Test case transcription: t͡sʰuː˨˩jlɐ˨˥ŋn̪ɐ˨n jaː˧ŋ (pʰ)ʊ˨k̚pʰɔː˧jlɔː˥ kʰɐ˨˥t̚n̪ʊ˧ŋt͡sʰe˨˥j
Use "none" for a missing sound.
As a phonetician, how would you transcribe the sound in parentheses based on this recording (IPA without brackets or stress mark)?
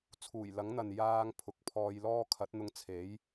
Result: pʰ